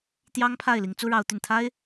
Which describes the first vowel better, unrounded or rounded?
unrounded